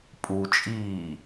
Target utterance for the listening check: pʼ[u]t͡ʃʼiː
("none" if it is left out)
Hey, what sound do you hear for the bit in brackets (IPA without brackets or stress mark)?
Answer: u